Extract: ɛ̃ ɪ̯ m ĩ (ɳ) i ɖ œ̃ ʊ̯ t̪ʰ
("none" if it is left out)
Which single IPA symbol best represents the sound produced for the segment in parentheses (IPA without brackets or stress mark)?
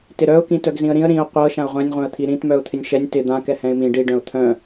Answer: ɖ